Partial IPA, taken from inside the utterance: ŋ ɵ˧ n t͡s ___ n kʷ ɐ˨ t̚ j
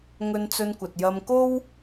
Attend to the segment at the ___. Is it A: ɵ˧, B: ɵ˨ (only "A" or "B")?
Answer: A